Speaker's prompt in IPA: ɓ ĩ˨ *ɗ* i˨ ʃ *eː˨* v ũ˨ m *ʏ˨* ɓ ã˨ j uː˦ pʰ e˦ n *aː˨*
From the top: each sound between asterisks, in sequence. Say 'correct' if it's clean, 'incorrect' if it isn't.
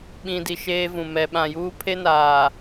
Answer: incorrect: d, incorrect: eː˦, incorrect: ɛ˨, correct

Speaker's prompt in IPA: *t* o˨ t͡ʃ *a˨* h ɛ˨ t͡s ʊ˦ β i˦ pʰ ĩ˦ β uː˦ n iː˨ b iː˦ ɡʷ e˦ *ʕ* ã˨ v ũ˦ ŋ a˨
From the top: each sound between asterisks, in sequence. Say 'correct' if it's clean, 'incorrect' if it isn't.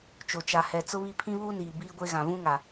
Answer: incorrect: t͡ʃ, correct, incorrect: ɣ

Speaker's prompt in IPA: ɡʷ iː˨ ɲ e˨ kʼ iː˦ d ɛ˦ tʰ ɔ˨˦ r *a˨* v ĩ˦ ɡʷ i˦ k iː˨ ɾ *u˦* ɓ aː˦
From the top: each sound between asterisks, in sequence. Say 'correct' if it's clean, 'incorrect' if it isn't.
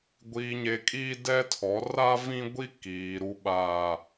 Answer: incorrect: a˦, correct

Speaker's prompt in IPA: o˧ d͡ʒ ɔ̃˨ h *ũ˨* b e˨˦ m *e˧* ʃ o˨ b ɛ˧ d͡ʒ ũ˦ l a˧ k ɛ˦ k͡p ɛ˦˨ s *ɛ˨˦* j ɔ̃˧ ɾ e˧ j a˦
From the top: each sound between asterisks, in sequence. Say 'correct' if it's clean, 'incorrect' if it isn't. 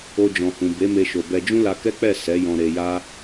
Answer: correct, correct, correct

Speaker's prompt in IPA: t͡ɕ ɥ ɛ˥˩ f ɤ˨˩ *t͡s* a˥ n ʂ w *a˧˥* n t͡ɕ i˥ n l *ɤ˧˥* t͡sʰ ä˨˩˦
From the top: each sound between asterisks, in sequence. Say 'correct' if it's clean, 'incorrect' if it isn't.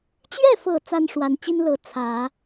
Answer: correct, correct, correct

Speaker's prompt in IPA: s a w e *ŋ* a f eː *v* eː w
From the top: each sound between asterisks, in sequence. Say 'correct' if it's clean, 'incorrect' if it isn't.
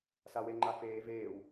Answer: incorrect: ŋ͡ǃ, correct

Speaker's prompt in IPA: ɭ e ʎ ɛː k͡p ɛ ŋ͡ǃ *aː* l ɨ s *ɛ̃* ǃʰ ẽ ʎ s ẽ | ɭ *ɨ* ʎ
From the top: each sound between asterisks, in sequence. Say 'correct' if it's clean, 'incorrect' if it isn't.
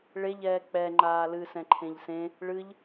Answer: correct, correct, correct

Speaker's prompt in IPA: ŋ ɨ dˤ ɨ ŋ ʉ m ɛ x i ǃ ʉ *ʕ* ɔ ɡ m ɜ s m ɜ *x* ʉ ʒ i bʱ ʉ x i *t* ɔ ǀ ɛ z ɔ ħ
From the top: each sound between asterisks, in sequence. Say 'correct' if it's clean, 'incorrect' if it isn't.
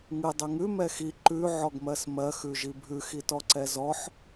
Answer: correct, correct, correct

